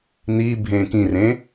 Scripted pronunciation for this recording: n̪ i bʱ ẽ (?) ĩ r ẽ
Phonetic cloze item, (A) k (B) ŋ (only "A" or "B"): A